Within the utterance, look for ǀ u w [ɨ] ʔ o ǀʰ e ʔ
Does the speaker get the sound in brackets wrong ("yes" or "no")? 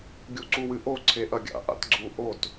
no